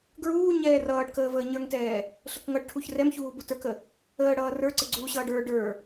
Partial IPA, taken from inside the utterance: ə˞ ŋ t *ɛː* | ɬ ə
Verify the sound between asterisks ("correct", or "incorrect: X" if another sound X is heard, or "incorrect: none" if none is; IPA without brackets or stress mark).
correct